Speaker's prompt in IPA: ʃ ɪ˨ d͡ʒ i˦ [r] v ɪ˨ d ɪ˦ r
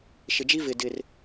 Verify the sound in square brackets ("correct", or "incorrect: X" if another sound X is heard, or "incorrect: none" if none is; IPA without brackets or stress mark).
incorrect: none